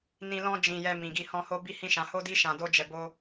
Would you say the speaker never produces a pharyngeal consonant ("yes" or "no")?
yes